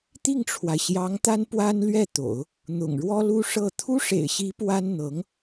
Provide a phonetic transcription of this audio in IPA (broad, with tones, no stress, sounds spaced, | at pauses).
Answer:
t̪ i˥˩ ŋ ʈ͡ʂʰ w a˩ ɪ̯ ɕ j ɑ˧˥ ŋ t̪ a˥ n p w a˥ n l ɥ ɛ˥˩ t̪ o̰˨˩˦ ʊ̯ | n̪ ʊ̰˨˩ ŋ ɻ w ɔ˥ l u˥ ʂ ɤ˥˩ t̪ʰ u˥ ʂ ḛ˨˩ ɪ̯ ɕ i˧˥ p w a˥ n n̪ ɤ˧˥ ŋ